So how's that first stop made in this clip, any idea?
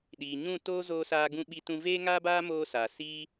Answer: implosive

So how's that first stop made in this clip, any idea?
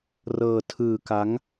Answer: aspirated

